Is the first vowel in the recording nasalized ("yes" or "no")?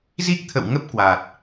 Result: no